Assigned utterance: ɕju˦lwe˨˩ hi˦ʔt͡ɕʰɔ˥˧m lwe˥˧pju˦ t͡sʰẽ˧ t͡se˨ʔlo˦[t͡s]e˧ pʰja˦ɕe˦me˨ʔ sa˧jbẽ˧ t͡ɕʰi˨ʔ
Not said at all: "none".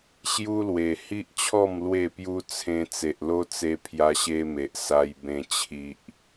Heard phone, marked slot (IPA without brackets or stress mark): t͡s